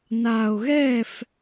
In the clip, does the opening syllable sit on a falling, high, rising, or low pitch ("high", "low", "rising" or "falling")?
low